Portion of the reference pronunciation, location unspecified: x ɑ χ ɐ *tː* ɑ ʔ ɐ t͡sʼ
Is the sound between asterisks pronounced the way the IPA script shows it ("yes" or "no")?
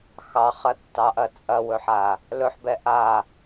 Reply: yes